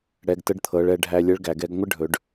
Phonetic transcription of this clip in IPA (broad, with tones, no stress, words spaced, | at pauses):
ɽɛ˩˧ɡtə˧ɖ t̪ʰɤ˩˧ɭɛ˩˧ ɖʱæ˧lʲə˧˥ɭ ɡæ˩˧ɡɛ˧˥ɡ ŋʷə˥ ɖʱɵ˩˧ɖ